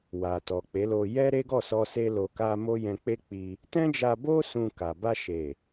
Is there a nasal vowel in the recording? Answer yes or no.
yes